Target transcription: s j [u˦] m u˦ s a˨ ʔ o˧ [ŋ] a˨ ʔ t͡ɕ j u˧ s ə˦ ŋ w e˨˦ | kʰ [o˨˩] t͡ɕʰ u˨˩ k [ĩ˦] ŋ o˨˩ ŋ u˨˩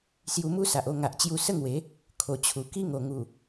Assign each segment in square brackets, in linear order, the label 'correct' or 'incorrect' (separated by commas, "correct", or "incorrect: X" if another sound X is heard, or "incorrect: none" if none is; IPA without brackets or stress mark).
incorrect: u˧, correct, correct, incorrect: i˦